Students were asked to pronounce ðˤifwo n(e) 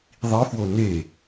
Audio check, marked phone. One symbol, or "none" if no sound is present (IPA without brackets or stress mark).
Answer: e